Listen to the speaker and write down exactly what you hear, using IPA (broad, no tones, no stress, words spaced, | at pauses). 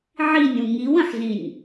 ʕinʲũ ŋiwə̃ħzĩnʲ